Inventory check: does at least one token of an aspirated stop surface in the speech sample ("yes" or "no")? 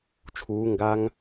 yes